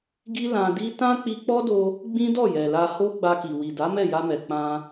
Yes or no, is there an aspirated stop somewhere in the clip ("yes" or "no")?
no